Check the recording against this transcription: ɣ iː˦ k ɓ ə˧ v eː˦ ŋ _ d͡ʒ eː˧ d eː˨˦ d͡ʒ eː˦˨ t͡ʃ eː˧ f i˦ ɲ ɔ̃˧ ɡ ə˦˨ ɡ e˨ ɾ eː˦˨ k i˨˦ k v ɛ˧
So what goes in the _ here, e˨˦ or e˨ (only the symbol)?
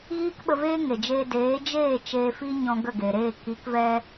e˨